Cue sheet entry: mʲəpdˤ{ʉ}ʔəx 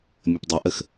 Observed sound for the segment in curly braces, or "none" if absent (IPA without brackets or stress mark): ɘ